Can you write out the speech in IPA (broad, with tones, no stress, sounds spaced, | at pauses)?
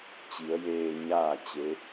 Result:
t͡ɕ i˩˧ ə̯ j eː˧ ɲ aː˥˨ t͡ɕ e˧˥